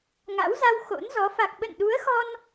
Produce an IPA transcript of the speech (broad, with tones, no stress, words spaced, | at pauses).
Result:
ŋa̰˧˥wza˧w xo̰˧˥nzɔ˨˦ fa˨˩k̚ɓə̰˧˨nɗu˨˦ə̯xɔ˧n